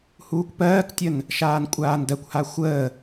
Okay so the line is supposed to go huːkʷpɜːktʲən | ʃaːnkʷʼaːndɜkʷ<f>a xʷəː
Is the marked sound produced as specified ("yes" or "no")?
no